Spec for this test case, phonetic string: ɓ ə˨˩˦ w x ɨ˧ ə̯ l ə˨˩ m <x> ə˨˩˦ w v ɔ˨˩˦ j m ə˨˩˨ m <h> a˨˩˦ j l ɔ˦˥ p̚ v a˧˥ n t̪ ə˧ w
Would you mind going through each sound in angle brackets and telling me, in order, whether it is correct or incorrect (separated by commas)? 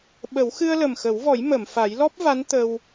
correct, incorrect